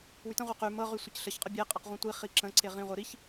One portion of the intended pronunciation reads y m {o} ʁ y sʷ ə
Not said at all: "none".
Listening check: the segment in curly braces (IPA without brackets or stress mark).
ɤ